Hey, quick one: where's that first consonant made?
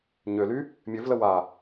palate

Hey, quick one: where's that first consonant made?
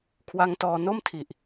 velum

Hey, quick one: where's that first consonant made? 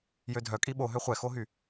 palate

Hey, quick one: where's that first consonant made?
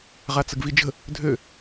uvula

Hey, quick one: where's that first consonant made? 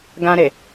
velum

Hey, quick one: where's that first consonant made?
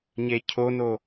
palate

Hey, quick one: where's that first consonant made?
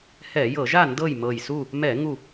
throat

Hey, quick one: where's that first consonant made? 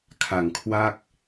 velum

